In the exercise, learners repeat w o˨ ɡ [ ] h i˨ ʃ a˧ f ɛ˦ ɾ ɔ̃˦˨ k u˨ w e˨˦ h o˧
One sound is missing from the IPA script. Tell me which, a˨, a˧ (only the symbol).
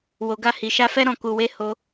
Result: a˧